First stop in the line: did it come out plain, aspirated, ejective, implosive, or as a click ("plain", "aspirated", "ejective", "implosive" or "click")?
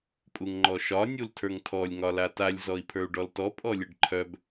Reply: ejective